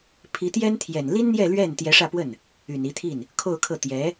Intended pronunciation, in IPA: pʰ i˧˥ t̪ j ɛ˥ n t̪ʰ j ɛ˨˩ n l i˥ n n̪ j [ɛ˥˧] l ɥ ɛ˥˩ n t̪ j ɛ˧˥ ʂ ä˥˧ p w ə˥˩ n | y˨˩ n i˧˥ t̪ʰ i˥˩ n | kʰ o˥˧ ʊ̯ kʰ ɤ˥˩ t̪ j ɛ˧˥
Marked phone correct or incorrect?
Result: correct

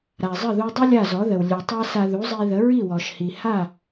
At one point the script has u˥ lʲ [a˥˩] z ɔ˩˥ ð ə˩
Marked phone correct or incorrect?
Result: correct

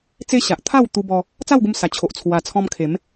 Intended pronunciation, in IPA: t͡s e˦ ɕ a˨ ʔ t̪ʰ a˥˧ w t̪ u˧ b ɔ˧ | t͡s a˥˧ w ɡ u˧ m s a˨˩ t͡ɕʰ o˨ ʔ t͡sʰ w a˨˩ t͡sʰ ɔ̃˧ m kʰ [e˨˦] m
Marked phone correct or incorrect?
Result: correct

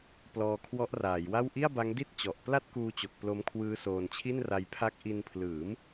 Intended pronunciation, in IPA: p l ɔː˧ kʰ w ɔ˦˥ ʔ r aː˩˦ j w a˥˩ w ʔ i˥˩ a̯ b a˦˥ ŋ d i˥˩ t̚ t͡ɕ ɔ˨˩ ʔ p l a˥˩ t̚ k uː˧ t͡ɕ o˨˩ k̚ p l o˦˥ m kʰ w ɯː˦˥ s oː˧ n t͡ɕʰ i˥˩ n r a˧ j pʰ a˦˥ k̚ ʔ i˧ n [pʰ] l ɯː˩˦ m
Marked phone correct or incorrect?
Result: correct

